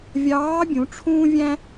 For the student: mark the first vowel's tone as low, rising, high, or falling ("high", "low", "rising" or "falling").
rising